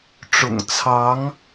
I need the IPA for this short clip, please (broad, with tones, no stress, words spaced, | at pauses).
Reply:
ʈ͡ʂʊ̰˨˩ŋt͡sʰɑ˧˥ŋ